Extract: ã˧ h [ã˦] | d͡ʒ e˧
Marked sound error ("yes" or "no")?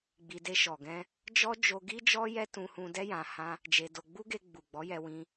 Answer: no